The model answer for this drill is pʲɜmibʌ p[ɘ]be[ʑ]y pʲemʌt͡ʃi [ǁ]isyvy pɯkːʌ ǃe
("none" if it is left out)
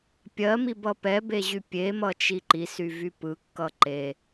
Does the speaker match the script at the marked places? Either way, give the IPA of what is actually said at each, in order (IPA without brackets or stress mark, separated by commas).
ɛ, ʑ, ǃ